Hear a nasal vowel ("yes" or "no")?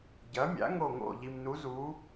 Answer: no